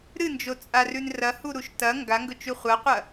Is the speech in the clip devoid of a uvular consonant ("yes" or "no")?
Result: no